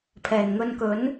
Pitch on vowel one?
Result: low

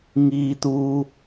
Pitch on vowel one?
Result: high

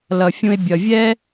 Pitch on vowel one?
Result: low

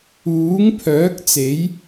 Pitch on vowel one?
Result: rising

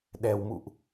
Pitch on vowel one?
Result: low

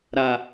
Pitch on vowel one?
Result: low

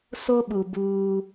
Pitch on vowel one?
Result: high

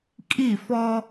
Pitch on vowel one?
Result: falling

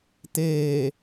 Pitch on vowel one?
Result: low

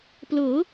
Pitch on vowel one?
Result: rising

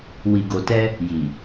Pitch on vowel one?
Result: low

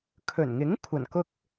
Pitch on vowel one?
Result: low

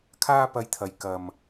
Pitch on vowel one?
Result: high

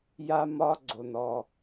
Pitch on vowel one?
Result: high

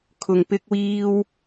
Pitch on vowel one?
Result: low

